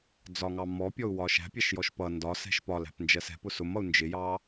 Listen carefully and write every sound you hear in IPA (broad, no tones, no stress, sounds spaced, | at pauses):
d͡z ɒ ŋ ɑ m ɔ pʲ ɔ u̯ w ɒ ʃ æ̤ pʲ æ ʃ j ɔ ʃ p ʌ n d ɒ s ɛ̤ ʃ p ɒ l æ̤ p n d͡ʒ ɜ s ɛ̤ p ʊ s ʊ m ʌ u̯ n d͡ʒ ɪ j ɑ